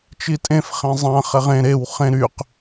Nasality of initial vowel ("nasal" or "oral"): oral